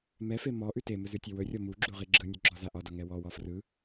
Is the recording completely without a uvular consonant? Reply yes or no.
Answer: no